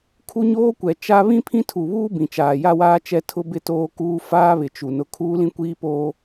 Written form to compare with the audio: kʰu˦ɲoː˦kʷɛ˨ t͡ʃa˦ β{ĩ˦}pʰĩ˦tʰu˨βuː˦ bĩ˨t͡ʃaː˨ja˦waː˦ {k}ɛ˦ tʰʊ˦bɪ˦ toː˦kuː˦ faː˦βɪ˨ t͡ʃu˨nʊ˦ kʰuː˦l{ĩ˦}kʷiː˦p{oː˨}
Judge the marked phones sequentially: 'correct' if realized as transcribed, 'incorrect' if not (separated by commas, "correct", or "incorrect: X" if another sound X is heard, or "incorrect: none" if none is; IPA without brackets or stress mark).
correct, incorrect: t͡ʃ, correct, incorrect: oː˦